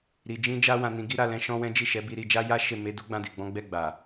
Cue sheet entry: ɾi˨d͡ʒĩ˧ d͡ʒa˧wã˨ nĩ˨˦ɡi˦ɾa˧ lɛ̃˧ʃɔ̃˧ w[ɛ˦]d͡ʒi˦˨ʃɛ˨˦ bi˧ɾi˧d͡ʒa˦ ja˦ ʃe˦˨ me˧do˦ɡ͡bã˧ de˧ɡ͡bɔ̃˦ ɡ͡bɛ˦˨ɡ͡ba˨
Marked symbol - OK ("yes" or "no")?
no